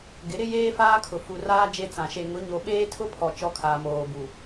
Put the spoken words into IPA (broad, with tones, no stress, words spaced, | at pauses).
ɡɪ˨˦ɾɪ˦jeː˦ faː˦kʰʊ˨ fu˨raː˦ d͡ʒe˦t͡sã˨ ʃe˨ ŋʊ˨˦ ɲo˨ ɓeː˦tʰʊ˦pʰɔ˨ t͡ʃɔ˦kʰaː˨moː˨ bu˨